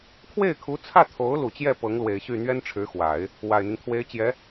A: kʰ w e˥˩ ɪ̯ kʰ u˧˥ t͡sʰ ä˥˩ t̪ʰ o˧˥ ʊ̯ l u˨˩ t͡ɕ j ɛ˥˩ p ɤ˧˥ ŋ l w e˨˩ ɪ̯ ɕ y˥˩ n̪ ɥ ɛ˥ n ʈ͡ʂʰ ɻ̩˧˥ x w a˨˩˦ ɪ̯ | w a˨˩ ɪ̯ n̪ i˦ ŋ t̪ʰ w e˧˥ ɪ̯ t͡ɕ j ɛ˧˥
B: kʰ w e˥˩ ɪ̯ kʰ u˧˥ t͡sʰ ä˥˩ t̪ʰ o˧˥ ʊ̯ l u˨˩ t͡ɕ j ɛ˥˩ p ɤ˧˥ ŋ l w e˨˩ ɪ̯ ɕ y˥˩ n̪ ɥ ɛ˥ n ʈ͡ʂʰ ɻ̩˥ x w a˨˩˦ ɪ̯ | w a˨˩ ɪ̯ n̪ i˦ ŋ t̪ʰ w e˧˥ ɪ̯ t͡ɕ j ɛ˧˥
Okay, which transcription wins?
A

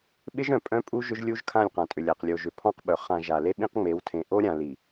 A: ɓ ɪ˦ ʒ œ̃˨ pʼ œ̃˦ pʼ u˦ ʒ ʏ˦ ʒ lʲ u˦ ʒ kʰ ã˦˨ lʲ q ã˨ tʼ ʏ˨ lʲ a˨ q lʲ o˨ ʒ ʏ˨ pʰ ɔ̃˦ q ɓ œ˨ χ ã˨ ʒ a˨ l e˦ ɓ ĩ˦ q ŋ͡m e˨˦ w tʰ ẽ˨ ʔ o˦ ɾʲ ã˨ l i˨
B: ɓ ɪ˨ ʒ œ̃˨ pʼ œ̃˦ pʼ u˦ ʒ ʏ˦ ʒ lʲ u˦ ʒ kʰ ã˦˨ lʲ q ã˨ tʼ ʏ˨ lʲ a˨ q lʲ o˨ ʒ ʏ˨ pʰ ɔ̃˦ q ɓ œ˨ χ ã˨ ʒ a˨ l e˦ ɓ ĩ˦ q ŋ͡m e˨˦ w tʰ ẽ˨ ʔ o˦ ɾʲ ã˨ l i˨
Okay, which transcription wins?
A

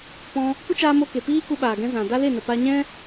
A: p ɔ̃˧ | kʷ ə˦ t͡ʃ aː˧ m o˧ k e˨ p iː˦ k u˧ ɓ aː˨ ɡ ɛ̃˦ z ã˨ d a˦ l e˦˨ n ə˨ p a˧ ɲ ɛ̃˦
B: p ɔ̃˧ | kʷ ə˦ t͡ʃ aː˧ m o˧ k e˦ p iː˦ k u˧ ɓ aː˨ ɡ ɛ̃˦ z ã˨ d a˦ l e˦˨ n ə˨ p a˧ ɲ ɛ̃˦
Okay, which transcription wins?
A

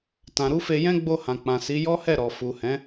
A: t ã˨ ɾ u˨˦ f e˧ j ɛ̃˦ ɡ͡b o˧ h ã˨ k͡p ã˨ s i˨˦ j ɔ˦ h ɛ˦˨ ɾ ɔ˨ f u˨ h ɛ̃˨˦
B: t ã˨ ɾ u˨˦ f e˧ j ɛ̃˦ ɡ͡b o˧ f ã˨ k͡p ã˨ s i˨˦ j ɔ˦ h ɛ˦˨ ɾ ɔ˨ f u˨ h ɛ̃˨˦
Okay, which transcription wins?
A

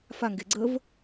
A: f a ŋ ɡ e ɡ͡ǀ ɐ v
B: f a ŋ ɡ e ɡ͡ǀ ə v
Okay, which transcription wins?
B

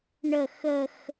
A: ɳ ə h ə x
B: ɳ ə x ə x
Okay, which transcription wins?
B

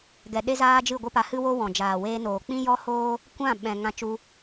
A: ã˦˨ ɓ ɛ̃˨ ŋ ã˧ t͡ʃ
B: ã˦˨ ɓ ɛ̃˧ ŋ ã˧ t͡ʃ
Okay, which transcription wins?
A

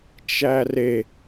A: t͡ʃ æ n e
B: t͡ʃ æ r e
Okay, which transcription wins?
B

